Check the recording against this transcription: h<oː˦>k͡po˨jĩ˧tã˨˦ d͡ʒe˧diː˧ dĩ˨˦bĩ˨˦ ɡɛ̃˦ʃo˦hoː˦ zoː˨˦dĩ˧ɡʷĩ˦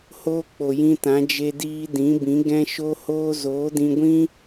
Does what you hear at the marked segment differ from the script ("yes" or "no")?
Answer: no